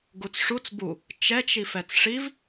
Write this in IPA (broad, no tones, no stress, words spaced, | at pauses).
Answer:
ɡut͡sʂut͡s bu | t͡ʃɛt͡ʃ ifɛt͡sʂiv